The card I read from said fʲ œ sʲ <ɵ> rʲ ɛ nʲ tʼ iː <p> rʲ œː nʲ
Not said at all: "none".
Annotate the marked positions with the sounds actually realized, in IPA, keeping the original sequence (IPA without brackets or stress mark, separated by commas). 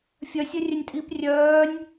œ, p